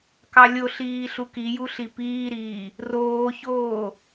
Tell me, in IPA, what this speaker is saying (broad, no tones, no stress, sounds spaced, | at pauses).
k ɑ lʲ o ɬ iː ɬ u k i j u ɬ i p iː ɾ iː | r oː ç oː